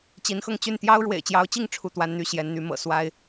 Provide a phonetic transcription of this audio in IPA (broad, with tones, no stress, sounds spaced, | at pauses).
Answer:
t͡ɕ i˨˦ n x ɤ˧ ŋ t͡ɕ y˥˨ n t̪ j ɑ˦ ʊ̯ ɻ w ḛ˨˩ ɪ̯ t͡ɕ j ɑ˨˦ ʊ̯ t͡ɕ i˥˨ ŋ ʈ͡ʂʰ u˥˨ t̪ w a˦ n n̪ y˥˨ ɕ j ɛ˨˦ n n̪ y˨˦ m ɤ̰˨˩ s w a˦ ɪ̯